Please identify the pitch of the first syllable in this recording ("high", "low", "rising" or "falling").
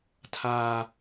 high